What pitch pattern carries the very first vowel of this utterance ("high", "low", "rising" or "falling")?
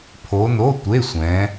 rising